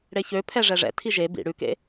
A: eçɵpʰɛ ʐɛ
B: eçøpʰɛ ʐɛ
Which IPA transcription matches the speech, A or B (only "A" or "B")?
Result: B